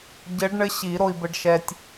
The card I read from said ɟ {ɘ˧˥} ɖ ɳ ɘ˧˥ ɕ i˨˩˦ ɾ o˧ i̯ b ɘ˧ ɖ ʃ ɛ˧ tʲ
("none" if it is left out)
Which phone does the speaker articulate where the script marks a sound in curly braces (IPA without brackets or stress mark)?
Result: ɘ˧˥